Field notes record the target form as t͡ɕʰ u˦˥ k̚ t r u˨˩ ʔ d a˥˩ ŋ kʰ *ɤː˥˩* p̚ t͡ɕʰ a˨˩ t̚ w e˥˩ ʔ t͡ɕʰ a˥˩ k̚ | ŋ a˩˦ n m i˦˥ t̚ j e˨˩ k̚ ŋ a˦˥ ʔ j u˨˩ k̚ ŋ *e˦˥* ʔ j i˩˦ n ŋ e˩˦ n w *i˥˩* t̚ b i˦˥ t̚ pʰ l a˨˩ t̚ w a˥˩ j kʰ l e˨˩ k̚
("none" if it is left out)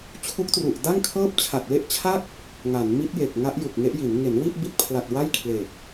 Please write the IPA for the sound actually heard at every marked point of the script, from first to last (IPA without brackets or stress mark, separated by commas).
ɤː˥˩, e˦˥, i˥˩